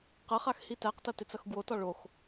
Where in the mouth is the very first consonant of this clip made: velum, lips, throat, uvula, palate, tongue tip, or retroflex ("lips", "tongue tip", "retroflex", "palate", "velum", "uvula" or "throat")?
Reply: uvula